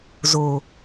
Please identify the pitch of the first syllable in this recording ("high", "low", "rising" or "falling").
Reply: low